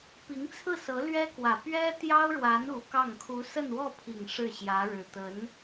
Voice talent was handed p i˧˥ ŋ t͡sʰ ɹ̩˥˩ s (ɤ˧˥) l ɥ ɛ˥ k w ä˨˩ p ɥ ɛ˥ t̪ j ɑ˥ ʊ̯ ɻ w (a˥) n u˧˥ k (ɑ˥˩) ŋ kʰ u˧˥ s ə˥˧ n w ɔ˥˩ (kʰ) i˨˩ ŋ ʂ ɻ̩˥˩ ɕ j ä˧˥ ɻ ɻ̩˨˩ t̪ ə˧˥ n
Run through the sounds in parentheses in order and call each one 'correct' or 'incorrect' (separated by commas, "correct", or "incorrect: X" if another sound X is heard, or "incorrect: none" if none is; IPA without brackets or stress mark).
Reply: correct, incorrect: a˧˥, correct, incorrect: pʰ